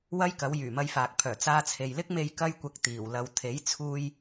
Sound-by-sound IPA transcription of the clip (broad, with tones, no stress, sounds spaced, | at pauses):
w ɐ˥ j k ɐ˨˥ w j yː˨˩ m ɐ˧ j f aː˨ k̚ pʰ œː˨˩ t͡s aː˧ t͡sʰ e˨ j l ɪ˥ k̚ m e˧ j k ɐ˧ j kʷ ɐ˨ k̚ t̪ iː˨˩ w l ɐ˨ w t̪ʰ e˨˥ j t͡sʰ uː˧ j